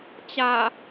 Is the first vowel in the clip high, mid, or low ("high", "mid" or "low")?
low